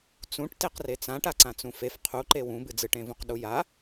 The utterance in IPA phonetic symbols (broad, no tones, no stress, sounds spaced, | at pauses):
t͡s ũ ʈ t e q r e t͡s ã ʈ a ǀ ã t͡s ũ f e f qʰ u ǃ e w ũ b ɨ d͡z ɨ ʈ ẽ v ũ q ɗ u j a